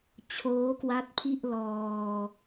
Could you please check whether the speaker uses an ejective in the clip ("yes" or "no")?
no